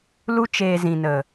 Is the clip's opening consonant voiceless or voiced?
voiced